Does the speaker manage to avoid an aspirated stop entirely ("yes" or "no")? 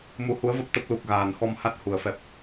yes